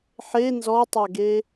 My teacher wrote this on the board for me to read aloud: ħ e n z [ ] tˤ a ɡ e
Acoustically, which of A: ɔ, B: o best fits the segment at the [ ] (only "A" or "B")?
A